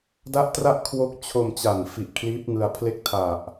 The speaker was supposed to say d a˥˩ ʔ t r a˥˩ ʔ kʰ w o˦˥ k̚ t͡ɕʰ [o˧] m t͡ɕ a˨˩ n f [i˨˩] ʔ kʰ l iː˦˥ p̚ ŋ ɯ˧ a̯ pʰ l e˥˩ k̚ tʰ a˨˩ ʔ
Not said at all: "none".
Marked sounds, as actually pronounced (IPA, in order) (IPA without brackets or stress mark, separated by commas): o˧, i˨˩